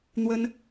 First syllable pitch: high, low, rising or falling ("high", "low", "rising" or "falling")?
high